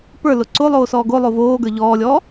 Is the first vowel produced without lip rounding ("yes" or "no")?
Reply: yes